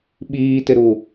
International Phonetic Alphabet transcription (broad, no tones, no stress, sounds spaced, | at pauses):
ɓ iː t ɪ ɾ u